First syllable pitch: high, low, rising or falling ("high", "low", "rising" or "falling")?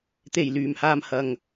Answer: low